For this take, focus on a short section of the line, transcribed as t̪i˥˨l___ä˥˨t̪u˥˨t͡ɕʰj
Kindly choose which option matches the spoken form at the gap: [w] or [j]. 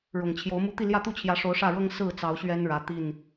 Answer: j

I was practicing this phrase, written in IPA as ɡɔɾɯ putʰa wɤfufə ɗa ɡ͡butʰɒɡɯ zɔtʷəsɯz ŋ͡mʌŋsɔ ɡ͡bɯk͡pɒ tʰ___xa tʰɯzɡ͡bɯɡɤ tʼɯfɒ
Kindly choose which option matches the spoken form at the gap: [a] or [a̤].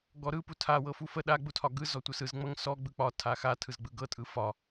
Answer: a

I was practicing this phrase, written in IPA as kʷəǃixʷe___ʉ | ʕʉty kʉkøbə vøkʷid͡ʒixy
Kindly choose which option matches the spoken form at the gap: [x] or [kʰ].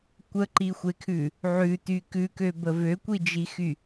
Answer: kʰ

